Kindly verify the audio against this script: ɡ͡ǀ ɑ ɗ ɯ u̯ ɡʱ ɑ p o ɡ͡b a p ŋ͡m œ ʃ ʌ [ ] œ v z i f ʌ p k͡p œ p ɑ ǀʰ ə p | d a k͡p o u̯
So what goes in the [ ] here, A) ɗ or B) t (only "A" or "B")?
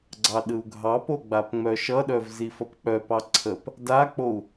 A